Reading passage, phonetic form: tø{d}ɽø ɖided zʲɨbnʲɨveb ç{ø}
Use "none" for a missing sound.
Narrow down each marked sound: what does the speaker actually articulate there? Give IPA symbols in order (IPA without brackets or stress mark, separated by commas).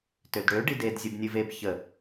d, ə